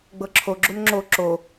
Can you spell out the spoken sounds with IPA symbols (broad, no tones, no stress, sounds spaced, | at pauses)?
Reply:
ɡ͡b ɤ ǁʰ o ɡ͡ǁ u n ŋ͡ǁ o ǁ o